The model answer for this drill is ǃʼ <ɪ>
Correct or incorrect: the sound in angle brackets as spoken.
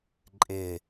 correct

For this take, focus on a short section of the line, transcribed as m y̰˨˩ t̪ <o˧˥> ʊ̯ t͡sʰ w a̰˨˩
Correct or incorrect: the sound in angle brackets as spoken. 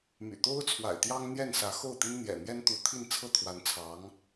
incorrect: o˥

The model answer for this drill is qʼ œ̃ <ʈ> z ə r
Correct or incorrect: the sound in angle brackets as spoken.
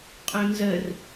incorrect: n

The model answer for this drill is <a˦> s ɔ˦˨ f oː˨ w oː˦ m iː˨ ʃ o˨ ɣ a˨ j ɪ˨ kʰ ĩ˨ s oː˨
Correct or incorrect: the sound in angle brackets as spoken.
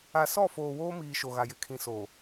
incorrect: a˨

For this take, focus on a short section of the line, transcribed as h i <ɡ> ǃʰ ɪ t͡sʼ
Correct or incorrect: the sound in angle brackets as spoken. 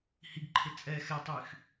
correct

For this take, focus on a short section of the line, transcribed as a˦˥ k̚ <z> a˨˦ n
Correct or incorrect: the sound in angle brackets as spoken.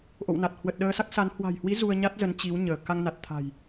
incorrect: s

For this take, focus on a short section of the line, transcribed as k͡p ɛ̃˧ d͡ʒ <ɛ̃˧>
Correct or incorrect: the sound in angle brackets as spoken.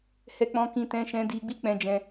correct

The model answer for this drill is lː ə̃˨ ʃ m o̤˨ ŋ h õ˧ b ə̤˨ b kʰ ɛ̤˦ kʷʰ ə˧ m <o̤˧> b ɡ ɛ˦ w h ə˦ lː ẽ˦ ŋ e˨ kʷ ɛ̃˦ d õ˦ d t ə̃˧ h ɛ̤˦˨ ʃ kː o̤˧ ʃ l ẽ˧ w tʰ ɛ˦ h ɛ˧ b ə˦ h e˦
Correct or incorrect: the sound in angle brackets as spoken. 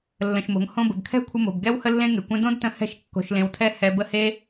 incorrect: o̤˨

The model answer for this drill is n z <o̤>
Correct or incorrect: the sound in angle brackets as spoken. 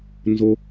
incorrect: o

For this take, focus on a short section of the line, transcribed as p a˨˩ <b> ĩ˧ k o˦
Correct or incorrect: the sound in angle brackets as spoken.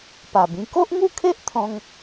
correct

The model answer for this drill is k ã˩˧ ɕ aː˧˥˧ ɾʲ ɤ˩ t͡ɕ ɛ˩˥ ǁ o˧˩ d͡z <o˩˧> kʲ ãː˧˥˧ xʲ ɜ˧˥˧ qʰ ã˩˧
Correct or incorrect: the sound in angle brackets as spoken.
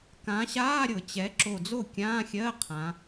incorrect: o˥˩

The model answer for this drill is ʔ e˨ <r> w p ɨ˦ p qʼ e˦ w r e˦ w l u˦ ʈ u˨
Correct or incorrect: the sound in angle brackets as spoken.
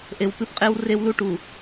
incorrect: none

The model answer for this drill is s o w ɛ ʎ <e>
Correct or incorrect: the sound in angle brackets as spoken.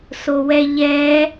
incorrect: ɛ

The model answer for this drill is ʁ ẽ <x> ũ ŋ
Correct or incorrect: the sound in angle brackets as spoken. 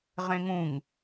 incorrect: ŋ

